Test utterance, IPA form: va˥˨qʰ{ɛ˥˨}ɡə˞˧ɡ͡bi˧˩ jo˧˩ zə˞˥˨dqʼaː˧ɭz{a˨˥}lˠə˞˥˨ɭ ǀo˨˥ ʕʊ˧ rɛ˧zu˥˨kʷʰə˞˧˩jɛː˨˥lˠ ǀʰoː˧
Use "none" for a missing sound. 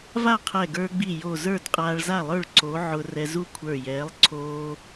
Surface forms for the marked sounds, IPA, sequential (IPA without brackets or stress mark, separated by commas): ɛ˧˩, a˥˨